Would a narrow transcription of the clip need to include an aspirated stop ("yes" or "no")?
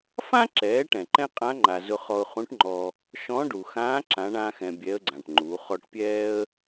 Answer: no